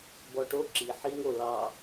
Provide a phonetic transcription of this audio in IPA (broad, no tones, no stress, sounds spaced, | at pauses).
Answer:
b ɔ ʈ o ǁ i ħ i ŋ o l ɑ